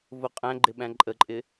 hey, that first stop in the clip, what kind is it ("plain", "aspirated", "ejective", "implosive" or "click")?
ejective